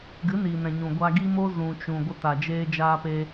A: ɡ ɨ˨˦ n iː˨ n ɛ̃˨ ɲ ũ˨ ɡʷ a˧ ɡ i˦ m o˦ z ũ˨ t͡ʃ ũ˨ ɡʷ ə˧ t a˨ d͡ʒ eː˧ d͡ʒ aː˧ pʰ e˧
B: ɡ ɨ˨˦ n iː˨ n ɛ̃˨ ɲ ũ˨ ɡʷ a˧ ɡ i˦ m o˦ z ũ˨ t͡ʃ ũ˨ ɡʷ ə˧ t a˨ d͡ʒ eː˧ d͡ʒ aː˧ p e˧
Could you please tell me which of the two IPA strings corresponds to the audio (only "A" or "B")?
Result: B